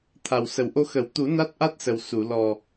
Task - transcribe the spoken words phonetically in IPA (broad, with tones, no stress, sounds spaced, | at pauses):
t̪ʰ a˨˩ w s ə˨˩ w ʔ o˧ x ə˨˩˦ w t̪ u˨˩˦ n a˦˥ t̚ ʔ a˦˥ t̚ s ə˨˩ w s u˨˩˨ l ɔ˨˩